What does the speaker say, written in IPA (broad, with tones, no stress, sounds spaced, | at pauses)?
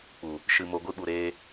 k͡p u˨ | ʃ ɨ˨ m o˨ ɡʷ ɨ˧ ɓ u˨ ɾ eː˧